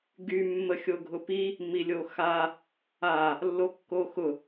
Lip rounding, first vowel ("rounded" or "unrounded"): rounded